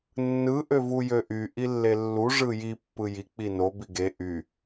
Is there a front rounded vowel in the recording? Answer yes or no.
yes